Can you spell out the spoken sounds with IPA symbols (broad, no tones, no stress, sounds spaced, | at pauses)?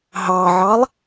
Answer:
ɦ ɑ ʕ ɑ lˠ